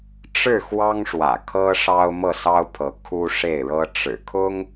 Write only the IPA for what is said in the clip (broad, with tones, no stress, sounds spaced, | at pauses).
ʈ͡ʂ ɻ̩˥˩ x w ɑ˥ ŋ ʂ w ä̰˨˩ kʰ ɤ˥ ʂ ɑ˥ ʊ̯ m ɤ˥˩ s ɑ˥ ʊ̯ pʰ ɤ˧˥ kʰ u˥ ʂ e˥˩ ɪ̯ ɻ ɤ˥ ʈ͡ʂ ɻ̩˨˩ kʰ ʊ˥ ŋ